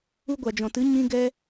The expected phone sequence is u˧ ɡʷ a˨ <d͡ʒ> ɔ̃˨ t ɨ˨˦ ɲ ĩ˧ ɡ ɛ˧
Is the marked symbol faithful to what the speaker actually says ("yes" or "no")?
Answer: yes